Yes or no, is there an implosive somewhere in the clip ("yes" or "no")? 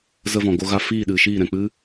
yes